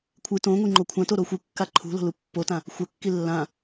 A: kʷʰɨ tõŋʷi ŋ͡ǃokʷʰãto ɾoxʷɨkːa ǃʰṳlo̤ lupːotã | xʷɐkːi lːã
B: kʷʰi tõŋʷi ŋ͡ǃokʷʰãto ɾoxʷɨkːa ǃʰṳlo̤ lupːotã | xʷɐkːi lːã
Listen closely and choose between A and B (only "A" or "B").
A